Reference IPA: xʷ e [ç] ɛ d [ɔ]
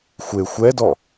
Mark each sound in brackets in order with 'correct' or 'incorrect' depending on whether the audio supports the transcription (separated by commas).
incorrect, correct